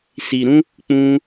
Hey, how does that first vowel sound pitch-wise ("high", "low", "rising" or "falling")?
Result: low